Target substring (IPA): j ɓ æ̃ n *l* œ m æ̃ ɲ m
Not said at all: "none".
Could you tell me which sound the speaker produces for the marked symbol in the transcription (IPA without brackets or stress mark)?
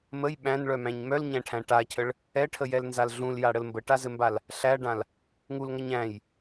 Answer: ɭ